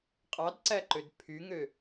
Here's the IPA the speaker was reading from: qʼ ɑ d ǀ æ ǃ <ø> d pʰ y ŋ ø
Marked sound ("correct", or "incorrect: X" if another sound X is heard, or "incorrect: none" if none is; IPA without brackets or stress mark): correct